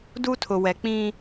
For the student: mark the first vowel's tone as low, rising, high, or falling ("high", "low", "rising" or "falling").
high